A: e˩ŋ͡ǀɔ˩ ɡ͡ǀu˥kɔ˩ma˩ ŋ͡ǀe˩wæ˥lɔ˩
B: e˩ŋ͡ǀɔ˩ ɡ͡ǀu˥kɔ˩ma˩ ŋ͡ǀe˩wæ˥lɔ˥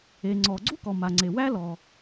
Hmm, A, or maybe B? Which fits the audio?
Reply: A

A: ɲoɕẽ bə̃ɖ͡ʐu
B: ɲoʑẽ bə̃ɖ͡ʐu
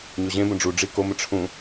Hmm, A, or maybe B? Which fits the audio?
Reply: B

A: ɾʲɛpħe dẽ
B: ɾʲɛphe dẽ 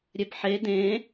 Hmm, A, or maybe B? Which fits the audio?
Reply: A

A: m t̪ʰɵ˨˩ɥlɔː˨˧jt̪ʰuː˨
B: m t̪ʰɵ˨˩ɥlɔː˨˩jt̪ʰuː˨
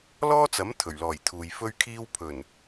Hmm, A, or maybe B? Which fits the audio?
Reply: B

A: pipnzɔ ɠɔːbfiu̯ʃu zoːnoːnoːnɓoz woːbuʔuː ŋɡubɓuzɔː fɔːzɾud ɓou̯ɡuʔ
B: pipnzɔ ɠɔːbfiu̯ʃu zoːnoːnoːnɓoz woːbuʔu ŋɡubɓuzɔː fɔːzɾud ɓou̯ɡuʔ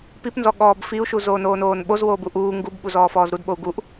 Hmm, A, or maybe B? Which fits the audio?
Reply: A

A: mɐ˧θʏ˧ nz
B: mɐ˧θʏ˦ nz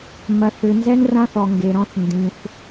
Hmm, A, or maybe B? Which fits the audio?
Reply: A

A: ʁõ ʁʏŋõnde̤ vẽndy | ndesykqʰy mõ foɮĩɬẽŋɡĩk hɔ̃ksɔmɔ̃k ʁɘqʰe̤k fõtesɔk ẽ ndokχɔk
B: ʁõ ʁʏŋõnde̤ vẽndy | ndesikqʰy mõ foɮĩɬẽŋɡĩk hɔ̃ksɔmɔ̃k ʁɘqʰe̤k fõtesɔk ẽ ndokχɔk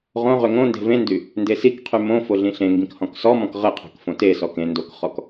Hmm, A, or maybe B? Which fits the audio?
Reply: B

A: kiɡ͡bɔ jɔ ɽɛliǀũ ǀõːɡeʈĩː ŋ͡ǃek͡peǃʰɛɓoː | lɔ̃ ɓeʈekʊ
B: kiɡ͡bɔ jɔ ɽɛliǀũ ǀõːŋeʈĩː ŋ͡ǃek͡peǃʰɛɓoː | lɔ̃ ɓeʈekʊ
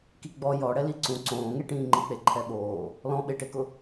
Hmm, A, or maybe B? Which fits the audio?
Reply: B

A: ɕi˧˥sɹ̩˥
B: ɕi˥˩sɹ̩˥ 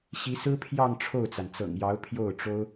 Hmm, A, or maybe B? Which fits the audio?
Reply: A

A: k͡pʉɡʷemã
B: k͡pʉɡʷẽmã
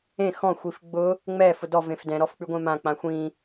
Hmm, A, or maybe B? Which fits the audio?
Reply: B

